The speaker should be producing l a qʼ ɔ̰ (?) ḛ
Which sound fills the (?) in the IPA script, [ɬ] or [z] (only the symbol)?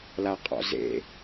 z